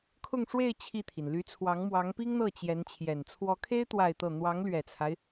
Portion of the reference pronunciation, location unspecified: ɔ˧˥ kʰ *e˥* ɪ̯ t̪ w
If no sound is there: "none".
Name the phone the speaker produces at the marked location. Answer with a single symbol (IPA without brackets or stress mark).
e˥